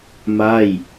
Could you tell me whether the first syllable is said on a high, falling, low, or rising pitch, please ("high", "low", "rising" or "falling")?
falling